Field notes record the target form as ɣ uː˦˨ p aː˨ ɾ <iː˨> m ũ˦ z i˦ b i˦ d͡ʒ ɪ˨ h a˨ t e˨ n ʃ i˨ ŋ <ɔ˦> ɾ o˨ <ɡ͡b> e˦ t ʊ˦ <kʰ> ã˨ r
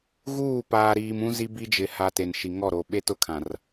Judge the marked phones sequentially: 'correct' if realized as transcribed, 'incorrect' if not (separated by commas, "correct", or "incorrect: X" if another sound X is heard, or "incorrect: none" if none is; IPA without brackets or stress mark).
correct, incorrect: ɔ˦˨, incorrect: ɓ, correct